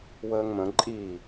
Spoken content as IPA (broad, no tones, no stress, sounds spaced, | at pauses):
w əː ŋ m ə̃ ǃʼ i